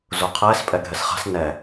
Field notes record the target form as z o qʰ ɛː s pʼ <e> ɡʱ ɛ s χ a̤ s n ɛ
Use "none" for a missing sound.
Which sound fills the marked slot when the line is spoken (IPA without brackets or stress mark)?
ɛ